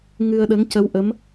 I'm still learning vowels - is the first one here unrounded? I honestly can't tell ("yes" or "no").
yes